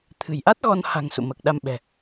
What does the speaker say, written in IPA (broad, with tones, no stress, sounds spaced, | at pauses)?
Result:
t̪ʰ ɨ̤˨˩ j ʔ a˦˥ t̚ ɣ ɔ˧ n h a̤˨˩ ŋ s ṵ˧˨ m əː˨˩ k̚ ɗ a˧ m ɓ ɛ̤˨˩